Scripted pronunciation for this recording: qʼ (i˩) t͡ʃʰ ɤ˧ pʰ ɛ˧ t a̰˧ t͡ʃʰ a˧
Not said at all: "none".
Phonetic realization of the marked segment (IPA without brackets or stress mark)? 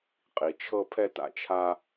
i˩